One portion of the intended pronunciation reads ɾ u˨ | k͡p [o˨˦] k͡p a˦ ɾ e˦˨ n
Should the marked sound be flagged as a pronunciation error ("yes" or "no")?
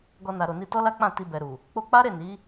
yes